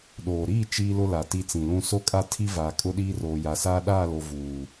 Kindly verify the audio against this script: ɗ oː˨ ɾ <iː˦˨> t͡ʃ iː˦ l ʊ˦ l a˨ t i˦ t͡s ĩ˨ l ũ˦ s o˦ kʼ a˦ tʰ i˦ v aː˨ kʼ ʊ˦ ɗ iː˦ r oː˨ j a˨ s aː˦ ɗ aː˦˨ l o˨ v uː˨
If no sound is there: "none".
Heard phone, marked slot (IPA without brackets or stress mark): iː˦˨